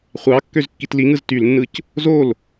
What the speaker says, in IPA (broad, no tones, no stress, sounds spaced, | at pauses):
χʷ ɑ kː ø z kː i t l i ŋ ɯ z t y l nː ɯ c | z o l